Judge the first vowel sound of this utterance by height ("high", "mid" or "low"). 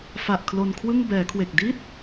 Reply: low